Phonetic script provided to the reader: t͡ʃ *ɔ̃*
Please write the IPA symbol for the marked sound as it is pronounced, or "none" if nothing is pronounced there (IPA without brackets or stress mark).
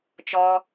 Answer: ɔ